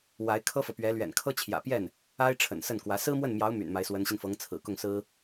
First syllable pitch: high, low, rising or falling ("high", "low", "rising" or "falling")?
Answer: rising